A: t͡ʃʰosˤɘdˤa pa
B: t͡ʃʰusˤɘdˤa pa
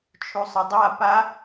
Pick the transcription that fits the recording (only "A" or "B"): B